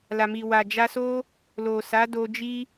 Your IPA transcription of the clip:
l a˨ m i˨ w a˨ d͡ʒ a˧ s o˦ | l o˨ s a˨˦ d o˧ d͡ʒ i˦

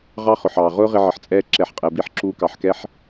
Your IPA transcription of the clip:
ʁ ɑ˦ χ ʊ˨ ħ ɑː˨ ʁ ʊː˦ ʁ ɪ˧ ʕ ə˨ ħ t͡sʼ ɛː˧ ǁ ɛ˨˦ ħ qʼ ɛ˨ b i˧ ħ ǁ uː˧ k ɑ˨ ħ k ɛ˦ ħ

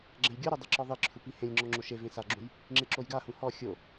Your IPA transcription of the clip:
ɡ͡ǁ ɛ̃ j ɡʲ o ɾ o dˤ i ǁ ɔ ðˤ e ǁʰ u p i h ẽ lʲ ŋ͡ǁ ɔ ŋ͡ǁ o ʃ e v ẽ s a ɡ͡ǁ ũ j | ŋ͡ǁ e ǁ o j ɡ a h ũ h ɔ xʲ o

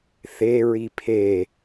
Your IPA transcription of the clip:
θ e ɹ i pʰ e

